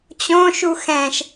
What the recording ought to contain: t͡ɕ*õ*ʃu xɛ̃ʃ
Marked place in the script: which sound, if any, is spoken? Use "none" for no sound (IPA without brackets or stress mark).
õ